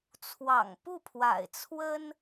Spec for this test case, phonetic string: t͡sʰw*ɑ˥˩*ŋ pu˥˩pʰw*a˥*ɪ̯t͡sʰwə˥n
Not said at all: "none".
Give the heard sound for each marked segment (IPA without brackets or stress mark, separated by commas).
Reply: ɑ̰˨˩, a̰˨˩